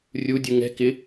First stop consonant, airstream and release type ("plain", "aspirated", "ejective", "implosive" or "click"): plain